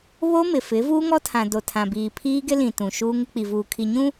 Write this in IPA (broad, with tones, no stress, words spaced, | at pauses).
βo˦mɪ˨fɪ˨˦ vuː˦ŋɔ˦tʰã˨ do˨tʰã˨biː˨ pʰiː˦ɡɪ˦lĩ˨ tũ˨ʃuː˦ŋɪ˦ k͡pi˨vuː˨kʰi˨ɲũ˦